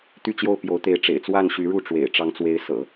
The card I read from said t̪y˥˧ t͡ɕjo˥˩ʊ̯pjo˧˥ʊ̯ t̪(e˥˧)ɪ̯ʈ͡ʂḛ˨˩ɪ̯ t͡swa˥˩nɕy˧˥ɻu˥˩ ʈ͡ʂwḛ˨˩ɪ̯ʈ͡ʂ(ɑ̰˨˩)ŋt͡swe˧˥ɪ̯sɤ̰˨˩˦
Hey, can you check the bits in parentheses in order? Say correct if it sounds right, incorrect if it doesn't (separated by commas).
incorrect, incorrect